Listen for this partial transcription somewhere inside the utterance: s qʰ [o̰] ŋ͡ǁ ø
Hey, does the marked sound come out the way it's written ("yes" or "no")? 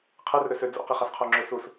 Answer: no